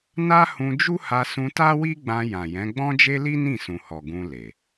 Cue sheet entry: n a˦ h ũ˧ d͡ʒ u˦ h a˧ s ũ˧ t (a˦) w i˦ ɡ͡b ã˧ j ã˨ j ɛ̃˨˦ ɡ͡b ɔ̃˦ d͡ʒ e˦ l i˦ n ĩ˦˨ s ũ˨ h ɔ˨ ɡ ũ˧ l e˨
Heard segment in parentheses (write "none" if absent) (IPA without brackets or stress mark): a˦